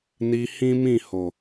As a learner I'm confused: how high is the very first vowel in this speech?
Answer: high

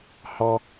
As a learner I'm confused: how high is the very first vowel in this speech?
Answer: low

